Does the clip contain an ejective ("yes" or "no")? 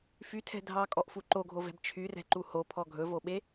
yes